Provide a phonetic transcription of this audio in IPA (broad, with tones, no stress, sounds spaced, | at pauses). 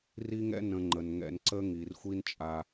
r i˦ ŋ ɛ̰˦ n ə̃˦ ŋ͡ǃ ə˧ n ŋ ɛ̰˧ n ǀ ə˦ ŋ i˨ r xʷ i˦ n t͡ʃʼ a˧